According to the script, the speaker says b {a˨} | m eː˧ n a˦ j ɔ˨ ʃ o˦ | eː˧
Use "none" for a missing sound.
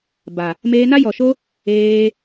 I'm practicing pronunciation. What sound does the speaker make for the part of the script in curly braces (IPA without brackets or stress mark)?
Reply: a˨